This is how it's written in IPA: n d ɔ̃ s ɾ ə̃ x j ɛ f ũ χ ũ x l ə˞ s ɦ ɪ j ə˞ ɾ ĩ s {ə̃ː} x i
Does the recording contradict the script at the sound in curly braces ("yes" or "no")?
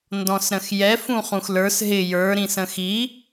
yes